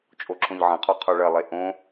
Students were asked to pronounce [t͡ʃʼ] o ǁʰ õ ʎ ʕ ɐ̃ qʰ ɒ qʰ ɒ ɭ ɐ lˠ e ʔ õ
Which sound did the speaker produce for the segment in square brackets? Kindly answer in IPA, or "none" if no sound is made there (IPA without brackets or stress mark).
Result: t͡ʃʼ